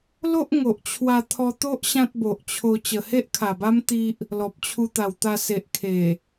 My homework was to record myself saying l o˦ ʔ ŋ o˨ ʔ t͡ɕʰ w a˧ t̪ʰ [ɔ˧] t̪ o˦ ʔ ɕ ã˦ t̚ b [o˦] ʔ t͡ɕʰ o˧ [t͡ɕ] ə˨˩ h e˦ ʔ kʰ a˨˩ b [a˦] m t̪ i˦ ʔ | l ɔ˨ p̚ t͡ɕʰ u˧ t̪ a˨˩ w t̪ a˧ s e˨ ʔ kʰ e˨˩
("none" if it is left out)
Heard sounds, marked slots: ɔ˧, o˨, t͡ɕ, a˦

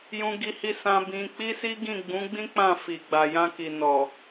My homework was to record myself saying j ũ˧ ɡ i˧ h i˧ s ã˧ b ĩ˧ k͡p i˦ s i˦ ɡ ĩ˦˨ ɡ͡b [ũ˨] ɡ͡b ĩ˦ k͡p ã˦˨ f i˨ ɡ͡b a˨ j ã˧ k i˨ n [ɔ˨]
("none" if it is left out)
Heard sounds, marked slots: ũ˨˦, ɔ˨

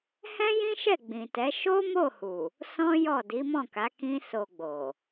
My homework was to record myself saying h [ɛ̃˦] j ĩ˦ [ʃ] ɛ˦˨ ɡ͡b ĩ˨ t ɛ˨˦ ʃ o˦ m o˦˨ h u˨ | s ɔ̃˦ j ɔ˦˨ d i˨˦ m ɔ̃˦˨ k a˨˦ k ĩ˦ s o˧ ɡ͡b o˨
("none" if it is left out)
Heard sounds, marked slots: ɛ̃˦, ʃ

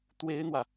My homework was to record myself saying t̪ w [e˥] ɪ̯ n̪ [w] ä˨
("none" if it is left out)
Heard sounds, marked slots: e˥, w

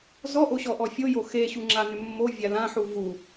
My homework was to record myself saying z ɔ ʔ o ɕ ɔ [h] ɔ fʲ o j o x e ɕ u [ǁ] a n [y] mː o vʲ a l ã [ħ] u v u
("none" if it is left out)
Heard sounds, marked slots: ʔ, ŋ͡ǁ, ʏ, ħ

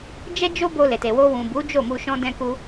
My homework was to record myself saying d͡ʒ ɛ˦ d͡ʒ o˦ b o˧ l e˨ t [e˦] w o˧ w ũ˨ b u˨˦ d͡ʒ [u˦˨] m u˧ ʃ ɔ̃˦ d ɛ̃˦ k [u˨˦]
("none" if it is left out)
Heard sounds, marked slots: e˨, o˦˨, u˦

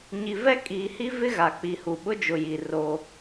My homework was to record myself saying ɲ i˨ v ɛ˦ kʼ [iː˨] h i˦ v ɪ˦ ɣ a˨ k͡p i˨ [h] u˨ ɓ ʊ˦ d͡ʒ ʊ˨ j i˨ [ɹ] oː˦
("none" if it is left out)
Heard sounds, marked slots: iː˨, h, r

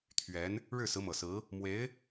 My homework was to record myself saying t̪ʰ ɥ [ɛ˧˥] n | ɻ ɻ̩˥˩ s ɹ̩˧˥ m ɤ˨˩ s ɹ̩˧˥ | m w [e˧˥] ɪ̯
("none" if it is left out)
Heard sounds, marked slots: ɛ˧˥, e˧˥

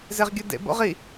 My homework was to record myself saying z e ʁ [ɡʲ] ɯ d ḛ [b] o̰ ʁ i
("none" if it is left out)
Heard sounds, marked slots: ɡʲ, b

